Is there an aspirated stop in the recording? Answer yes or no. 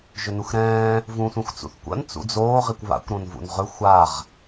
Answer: no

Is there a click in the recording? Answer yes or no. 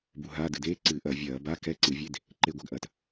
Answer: yes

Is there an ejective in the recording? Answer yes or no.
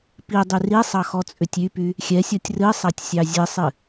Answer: yes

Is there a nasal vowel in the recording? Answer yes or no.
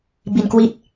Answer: no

